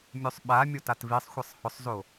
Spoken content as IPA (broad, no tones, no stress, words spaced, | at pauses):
mʲosˤɓamʲo tatvisˤxʷʌsˤ hʊsˤzo